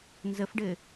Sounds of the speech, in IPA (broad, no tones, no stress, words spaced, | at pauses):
nzəfɖɘ